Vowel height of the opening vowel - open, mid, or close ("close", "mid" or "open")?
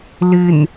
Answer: close